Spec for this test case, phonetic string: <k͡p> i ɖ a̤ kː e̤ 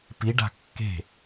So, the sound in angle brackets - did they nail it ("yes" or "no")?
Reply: no